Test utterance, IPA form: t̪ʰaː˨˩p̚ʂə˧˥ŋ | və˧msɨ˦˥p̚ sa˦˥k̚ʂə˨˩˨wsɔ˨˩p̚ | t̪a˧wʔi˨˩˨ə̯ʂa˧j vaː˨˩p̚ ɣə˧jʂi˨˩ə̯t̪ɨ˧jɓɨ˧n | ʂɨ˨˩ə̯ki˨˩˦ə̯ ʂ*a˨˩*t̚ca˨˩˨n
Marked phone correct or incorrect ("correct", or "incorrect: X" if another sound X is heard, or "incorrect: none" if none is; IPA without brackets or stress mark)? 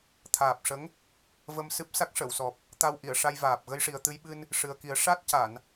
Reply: incorrect: a˦˥